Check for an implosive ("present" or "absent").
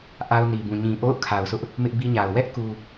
absent